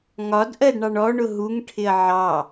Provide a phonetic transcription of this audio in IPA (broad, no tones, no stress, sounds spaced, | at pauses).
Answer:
ŋ ɒ d ʔ ɜ d ɳ ɑ ɳ ɔ ɳ ʊ ɦ u ŋ ʈʰ ɪ ɐ̯ ʕ ɑ